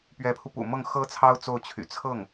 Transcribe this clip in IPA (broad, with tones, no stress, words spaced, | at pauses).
pɥɛ˧˥pʰu˧pṵ˨˩ mɤ˥˩ŋ xɤ˥t͡sʰɑ˥ʊ̯ t͡so˥˩ʊ̯t͡ɕʰy̰˨˩ t͡sʰɤ˥˩ŋ